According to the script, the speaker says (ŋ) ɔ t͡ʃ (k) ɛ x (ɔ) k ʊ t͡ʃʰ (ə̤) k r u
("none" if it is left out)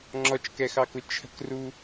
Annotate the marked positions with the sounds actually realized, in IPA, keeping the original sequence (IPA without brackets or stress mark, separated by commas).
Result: ŋ͡ǁ, k, ɑ, ə̤